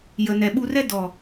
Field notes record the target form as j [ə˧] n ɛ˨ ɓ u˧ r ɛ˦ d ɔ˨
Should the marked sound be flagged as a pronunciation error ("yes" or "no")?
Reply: yes